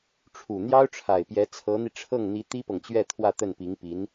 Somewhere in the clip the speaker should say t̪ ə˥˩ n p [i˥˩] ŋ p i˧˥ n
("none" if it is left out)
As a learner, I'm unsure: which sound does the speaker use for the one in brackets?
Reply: i˧˥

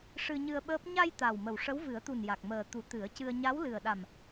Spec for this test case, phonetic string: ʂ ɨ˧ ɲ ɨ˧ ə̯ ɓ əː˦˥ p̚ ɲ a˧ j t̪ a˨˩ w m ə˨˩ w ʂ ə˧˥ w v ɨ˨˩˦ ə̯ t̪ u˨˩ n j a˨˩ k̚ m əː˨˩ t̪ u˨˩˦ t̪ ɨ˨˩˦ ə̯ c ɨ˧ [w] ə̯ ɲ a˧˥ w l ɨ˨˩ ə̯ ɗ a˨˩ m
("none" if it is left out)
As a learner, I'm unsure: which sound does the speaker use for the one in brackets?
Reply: none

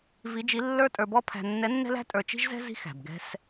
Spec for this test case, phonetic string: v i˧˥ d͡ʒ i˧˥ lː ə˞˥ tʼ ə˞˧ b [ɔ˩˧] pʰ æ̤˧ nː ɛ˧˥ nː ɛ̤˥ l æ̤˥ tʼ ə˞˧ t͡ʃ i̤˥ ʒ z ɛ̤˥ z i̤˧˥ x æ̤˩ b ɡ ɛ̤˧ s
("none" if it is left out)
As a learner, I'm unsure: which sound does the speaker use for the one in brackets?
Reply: ɔ˥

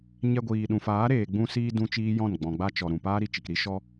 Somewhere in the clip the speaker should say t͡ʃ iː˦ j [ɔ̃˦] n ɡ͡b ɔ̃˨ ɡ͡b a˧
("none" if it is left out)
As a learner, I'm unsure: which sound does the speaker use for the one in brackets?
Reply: ɔ̃˦˨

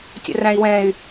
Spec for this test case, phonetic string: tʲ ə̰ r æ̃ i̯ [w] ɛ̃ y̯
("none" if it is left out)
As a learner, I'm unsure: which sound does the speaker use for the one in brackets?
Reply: w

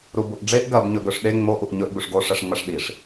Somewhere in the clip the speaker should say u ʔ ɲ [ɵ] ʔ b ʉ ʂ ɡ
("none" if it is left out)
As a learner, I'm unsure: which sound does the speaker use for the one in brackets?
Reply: ɵ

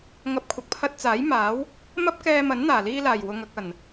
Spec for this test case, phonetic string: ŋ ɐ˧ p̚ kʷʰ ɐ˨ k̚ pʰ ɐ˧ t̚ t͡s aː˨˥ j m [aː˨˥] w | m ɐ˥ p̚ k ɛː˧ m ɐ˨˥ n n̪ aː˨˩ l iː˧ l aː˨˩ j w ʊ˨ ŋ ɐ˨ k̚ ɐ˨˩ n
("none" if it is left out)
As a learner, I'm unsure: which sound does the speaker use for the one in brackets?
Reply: aː˨˥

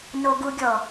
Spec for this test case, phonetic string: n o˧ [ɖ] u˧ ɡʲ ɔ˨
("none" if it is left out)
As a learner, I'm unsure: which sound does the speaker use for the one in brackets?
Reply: ɡ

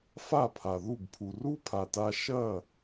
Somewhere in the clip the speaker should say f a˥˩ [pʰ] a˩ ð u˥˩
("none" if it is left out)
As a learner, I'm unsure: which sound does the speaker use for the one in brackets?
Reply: pʰ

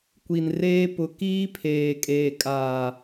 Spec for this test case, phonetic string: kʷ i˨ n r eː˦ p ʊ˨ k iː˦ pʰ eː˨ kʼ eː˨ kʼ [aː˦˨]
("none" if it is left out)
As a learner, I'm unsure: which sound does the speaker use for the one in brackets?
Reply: aː˨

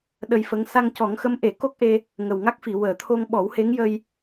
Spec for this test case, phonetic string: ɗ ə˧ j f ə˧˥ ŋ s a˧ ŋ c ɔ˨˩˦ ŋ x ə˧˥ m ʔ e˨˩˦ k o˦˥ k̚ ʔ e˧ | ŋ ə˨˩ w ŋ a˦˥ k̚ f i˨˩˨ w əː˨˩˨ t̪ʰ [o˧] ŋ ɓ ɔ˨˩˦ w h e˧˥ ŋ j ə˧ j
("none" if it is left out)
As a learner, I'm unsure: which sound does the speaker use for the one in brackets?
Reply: o˧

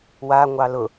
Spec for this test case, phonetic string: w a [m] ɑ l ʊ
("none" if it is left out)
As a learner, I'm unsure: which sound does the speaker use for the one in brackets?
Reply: ŋʷ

